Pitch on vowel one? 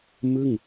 falling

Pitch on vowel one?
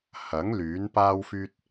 rising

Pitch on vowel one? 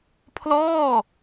falling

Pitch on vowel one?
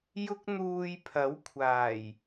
high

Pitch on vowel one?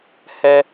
high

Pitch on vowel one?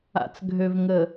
low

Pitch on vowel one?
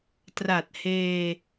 low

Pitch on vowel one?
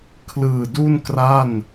low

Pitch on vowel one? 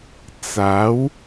rising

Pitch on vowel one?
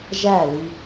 falling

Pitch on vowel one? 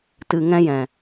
low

